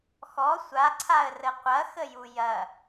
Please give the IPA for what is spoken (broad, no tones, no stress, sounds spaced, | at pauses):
x ɔ sʷ a ǀʰ a ə̯ r ə qʷ ɐ x ə j u j ɐ